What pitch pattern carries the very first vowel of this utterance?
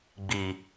low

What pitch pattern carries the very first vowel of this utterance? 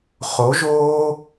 rising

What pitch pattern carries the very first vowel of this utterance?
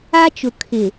high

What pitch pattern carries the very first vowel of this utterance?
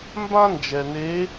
high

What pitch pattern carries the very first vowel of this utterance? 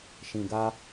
low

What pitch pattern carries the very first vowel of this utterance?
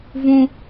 high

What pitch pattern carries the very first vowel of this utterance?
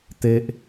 high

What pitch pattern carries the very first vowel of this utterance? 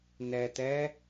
low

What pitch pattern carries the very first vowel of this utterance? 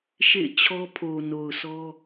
falling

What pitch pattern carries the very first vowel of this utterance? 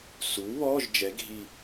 rising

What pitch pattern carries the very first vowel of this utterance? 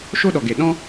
high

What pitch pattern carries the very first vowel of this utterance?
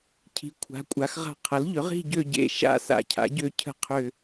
rising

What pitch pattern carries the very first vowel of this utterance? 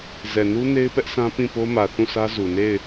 low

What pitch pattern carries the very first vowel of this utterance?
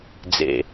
low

